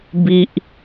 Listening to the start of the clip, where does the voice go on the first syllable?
high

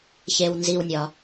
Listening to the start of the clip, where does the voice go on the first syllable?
low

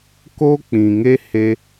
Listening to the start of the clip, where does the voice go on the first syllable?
high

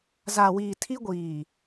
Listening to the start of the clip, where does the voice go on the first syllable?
low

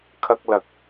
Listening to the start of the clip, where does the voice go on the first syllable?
high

